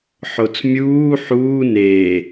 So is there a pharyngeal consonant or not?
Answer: yes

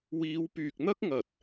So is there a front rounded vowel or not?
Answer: yes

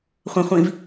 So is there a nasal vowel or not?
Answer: yes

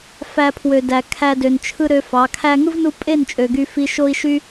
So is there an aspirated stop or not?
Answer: yes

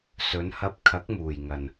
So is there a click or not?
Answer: no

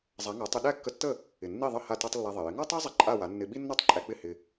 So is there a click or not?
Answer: yes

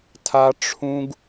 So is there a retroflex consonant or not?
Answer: yes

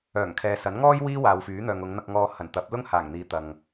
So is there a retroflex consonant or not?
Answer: no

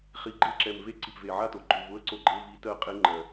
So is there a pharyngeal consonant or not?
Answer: yes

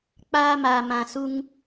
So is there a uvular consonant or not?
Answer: no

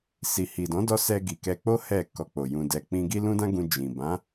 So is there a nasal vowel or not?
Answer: yes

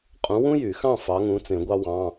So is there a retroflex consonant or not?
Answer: no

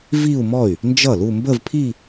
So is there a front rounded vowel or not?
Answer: yes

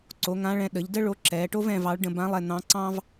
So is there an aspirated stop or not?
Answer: no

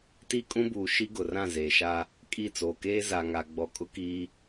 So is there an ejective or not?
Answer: yes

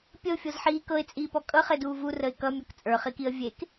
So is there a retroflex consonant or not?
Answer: no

